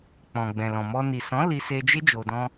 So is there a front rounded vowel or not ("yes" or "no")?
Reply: no